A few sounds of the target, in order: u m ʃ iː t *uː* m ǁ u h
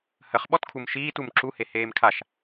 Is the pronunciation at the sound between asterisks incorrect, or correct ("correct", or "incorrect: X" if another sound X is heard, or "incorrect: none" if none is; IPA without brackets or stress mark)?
incorrect: u